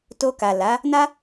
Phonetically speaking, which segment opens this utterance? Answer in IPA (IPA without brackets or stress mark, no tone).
t